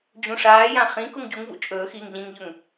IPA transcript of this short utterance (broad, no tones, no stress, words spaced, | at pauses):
d͡ʑũʂaːjã χĩ kuŋɟuŋvṵ t͡ʃʼɵːxiːŋ ʎĩŋʎɵŋ